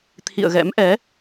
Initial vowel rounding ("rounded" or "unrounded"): unrounded